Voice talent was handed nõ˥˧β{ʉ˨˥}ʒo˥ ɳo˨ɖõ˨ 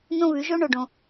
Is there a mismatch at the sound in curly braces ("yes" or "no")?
no